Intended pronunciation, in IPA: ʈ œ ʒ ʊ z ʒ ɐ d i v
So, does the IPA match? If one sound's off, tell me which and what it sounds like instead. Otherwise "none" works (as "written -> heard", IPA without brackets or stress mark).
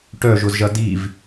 none